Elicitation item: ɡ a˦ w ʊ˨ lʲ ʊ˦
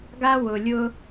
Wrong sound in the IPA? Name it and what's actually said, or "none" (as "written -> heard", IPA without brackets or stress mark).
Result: none